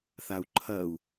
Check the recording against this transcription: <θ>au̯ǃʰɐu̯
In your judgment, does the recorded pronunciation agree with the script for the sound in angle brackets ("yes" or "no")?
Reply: yes